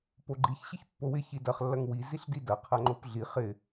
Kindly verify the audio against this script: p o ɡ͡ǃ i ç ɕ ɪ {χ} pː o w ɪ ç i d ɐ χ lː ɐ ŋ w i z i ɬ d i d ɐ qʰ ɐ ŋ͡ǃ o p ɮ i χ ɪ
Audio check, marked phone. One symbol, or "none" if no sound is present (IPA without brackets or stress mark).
ç